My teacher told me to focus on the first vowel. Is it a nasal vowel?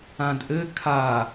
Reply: yes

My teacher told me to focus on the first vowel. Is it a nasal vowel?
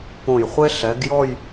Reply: yes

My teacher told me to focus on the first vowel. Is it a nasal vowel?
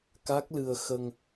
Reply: no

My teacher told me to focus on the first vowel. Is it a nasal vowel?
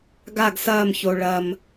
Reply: no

